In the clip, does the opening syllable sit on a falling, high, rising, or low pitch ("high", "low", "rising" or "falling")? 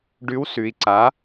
rising